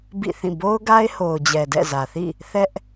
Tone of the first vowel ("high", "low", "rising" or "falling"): falling